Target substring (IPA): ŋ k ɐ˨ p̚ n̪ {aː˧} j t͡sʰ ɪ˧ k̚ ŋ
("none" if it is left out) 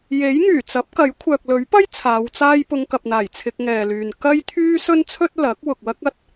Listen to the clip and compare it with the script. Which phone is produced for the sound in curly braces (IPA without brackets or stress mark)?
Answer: aː˨˩